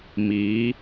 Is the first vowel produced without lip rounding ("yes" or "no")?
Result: yes